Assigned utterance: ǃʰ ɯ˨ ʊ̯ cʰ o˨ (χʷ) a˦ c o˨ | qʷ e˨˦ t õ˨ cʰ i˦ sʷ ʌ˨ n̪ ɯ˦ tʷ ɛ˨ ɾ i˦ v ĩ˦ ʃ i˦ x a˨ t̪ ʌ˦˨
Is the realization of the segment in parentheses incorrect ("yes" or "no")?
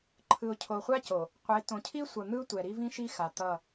no